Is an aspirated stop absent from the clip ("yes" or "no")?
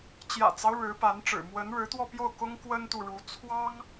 no